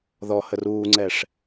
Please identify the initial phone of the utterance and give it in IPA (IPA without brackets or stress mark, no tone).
ð